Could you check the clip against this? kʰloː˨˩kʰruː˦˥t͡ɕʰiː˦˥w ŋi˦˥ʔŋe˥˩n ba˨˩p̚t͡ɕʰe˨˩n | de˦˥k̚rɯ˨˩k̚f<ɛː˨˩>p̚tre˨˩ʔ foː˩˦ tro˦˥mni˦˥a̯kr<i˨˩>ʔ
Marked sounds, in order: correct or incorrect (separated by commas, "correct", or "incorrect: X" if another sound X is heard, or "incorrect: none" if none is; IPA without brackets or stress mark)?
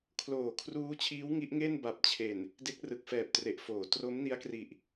correct, correct